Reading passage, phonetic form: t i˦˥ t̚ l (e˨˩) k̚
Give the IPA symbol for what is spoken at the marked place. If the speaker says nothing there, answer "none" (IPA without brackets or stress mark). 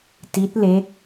e˦˥